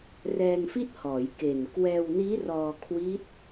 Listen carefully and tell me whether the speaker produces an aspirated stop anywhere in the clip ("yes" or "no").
yes